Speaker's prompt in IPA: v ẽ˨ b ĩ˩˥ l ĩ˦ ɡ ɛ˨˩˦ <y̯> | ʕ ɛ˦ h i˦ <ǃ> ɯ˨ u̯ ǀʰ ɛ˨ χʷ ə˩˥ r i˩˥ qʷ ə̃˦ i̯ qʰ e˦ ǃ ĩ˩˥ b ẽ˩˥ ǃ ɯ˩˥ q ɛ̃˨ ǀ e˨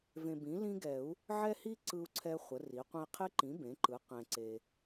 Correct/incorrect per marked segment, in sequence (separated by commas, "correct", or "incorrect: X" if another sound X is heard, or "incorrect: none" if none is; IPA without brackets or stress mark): incorrect: u̯, incorrect: ǀ